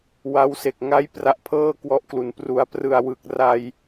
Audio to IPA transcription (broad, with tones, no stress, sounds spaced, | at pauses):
w a˦˥ w s e˨˩ k̚ ŋ a˦˥ j p r a˦˥ ʔ pʰ ɤː˥˩ k w ɔ˦˥ ʔ k l u˩˦ n p r u˩˦ a̯ p r ɯ˨˩ a̯ w ɯ˨˩ k̚ r a˧ j